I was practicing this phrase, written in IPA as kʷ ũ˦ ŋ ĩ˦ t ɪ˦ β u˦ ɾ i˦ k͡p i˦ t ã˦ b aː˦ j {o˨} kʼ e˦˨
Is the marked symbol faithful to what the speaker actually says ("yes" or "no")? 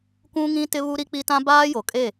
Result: yes